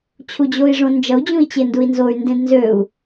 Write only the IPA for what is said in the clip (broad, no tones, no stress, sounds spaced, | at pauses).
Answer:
t͡ɕʰ u d͡ʑ o i̯ ʐ õ n d͡ʒ ʌ u̯ d͡ʑ ũ i̯ t͡ɕ e n d u i̯ n z o y̯ n d ẽ d n z ø u̯